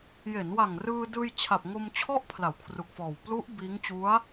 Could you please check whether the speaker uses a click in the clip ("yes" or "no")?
no